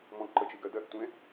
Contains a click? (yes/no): yes